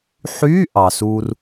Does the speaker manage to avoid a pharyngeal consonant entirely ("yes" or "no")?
no